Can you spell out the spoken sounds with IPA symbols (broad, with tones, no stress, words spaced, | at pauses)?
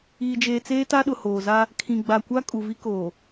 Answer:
iː˨d͡ʒeː˨t͡seː˦ ta˦ɗʊ˨hoː˨za˦ | kʰĩ˨ɡ͡ba˨kʷa˦ kʼu˨vi˦koː˨